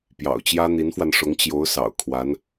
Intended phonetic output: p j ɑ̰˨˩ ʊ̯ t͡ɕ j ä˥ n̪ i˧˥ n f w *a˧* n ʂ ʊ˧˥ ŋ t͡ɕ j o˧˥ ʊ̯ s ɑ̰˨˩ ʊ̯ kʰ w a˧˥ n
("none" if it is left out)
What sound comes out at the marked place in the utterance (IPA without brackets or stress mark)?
a˧